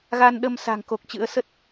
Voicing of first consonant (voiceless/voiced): voiced